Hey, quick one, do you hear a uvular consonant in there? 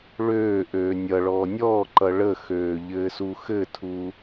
no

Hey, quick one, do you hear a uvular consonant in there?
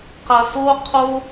yes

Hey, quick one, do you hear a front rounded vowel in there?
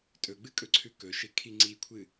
no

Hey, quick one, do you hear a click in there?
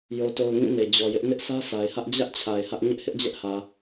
no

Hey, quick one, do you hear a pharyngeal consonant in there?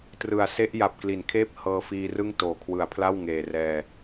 no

